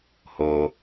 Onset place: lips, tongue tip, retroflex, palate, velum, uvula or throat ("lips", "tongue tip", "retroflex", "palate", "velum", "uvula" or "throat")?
throat